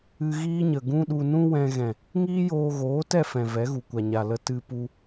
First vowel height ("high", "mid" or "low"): high